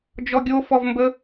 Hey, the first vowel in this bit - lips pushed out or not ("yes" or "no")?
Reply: yes